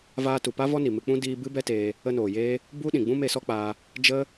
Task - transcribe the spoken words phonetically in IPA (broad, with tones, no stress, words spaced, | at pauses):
vaː˧tu˨pa˦ vɔ˦ni˨mɨ˧k͡pũ˦ diː˧ bɨ˦bɛ˦teː˧ | ə˧noː˨jeː˦ | bu˦ɗĩ˨ ɡ͡bũ˦me˧sɔ˦k͡paː˧ | d͡ʒə˦